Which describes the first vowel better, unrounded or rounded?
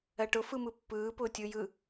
unrounded